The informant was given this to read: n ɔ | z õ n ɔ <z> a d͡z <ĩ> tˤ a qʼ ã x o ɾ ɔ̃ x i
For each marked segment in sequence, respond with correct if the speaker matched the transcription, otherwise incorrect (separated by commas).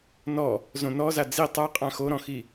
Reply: correct, incorrect